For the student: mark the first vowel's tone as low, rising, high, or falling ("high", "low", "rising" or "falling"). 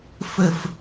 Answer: low